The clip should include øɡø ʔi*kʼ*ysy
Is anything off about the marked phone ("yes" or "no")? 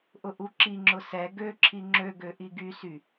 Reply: yes